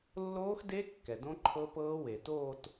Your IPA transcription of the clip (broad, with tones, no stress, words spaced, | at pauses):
lːoː˦˥xde˦˥ kːɛ˩dõ˦˥ǃʰɤ˦˥pɤː˦˥ we˩toː˥˧t